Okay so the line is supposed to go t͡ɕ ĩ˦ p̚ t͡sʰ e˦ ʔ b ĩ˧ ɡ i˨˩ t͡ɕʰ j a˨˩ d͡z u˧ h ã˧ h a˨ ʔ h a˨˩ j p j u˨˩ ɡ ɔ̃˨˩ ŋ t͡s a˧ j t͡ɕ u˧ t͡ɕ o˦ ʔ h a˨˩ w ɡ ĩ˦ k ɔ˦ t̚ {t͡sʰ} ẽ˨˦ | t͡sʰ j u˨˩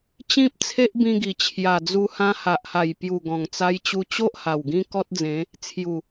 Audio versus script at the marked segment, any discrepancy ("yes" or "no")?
yes